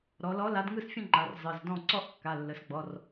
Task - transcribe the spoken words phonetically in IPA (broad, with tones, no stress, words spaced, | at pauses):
ɾɔ˩˧lɔ˨˥ la˨˥dŋɯ˥˧sfʲə̃˥˧ŋ͡ǃa˩˧r zˤɯ˩˧˩zdɔ̃˥˩ ǀɔ˥˧ʔkːa˩˧˩lːə˩˧sɡ͡bɔ˩˧˩r